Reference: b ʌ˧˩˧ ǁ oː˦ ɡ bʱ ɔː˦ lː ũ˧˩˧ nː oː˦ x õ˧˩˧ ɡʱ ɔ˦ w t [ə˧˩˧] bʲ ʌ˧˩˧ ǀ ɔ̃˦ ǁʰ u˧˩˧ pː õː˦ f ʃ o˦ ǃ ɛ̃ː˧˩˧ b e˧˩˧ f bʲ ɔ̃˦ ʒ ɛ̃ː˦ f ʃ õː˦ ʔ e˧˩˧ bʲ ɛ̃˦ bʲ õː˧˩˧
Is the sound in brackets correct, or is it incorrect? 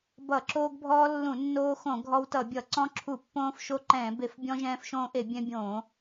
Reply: incorrect